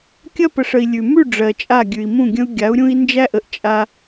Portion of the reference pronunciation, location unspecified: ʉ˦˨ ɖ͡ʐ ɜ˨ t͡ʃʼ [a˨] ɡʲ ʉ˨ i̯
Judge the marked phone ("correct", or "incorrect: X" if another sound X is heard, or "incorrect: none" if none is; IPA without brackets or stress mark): incorrect: a˦˨